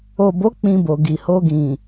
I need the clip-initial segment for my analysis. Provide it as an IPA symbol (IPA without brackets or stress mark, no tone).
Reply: o